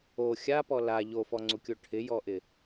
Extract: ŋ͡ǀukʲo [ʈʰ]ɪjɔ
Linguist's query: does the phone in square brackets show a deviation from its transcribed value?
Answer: no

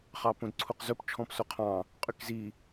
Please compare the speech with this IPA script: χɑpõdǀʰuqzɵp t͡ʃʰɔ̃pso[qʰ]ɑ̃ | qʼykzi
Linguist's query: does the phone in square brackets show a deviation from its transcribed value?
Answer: no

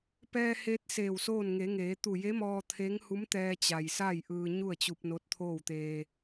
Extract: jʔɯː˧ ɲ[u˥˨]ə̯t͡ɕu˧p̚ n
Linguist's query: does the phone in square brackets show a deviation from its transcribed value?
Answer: no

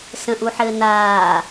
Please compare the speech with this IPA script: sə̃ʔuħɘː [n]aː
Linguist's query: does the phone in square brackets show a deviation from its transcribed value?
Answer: no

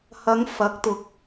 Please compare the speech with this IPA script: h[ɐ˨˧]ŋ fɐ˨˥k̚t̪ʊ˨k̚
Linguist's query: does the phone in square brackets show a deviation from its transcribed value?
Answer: no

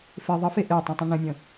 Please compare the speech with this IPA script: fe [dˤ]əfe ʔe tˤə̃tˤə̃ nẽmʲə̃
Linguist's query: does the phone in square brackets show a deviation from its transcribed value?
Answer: yes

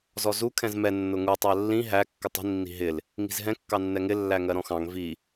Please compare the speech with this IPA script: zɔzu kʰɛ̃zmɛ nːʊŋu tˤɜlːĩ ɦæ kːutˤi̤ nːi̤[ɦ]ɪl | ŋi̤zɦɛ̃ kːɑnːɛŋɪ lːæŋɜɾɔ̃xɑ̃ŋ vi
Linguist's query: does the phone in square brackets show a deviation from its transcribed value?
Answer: no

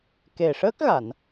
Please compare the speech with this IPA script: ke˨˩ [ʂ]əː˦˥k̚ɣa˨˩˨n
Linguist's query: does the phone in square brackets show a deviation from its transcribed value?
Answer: no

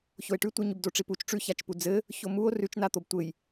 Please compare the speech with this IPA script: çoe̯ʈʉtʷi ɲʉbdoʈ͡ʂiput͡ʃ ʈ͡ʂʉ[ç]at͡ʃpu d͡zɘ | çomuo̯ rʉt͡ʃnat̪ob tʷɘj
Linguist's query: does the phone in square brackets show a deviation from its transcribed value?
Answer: no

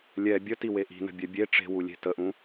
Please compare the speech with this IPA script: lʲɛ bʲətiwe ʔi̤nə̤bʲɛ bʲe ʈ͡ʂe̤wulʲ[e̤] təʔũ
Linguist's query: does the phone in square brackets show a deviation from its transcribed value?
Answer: no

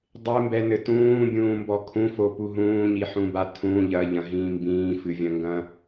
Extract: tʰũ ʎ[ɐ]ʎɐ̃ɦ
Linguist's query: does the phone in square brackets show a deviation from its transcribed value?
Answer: no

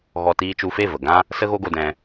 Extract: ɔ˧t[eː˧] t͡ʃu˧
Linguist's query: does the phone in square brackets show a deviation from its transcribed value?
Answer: yes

